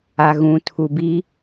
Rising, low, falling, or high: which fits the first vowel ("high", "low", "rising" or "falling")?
low